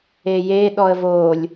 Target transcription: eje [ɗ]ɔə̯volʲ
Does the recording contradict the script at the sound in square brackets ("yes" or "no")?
no